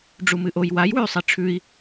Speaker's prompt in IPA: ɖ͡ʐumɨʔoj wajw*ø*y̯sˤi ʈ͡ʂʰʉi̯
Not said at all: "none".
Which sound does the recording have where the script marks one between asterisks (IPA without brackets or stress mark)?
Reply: ʉ